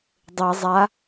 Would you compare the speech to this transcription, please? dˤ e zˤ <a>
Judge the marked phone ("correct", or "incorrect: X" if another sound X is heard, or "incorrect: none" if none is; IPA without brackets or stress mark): correct